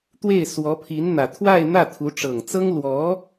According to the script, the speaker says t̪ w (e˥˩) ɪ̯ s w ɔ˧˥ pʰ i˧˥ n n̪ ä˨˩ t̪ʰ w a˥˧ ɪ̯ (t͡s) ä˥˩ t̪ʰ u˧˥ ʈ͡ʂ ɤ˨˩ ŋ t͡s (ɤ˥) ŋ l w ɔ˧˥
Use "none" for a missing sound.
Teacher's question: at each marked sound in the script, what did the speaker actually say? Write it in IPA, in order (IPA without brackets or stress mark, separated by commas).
e˥˩, n̪, ɤ˥